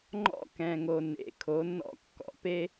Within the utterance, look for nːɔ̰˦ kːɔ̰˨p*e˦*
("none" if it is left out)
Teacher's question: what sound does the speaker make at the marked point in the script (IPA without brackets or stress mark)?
e˦